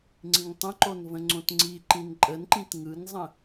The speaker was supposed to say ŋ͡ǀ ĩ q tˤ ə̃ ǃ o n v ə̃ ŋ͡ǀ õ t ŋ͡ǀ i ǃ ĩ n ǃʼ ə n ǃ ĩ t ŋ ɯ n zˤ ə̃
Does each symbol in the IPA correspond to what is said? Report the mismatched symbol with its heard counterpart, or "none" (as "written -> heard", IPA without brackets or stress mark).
q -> ŋ